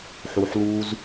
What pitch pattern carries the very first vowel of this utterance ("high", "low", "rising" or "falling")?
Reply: low